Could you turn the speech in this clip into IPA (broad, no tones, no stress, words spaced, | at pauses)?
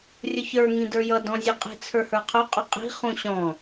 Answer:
rʲʊçə˞ ŋĩdə˞jʌ dɔ̃zʲʌqʼi̤ t͡sʰə˞hə˞qʰʊ qʼʊqʼi̤ χũɕɔ̃